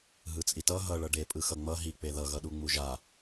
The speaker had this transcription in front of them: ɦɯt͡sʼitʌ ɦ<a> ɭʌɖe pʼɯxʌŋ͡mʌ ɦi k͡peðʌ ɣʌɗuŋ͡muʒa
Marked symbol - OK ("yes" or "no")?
no